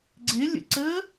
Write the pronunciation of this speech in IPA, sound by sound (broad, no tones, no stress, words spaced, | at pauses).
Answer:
ɡ͡ǀɪlʲə̰ǀəː